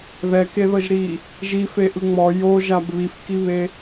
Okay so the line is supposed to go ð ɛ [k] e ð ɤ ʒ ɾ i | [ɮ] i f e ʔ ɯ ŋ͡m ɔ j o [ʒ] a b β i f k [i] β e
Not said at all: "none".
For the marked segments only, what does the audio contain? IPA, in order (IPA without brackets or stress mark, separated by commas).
k, ʒ, ʒ, i